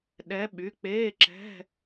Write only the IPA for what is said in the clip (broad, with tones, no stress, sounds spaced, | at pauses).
ɗ ɛ˨˦ ɓ y˩˧˩ k͡p eː˧˥˧ ǁ ɛ̤˧˥˧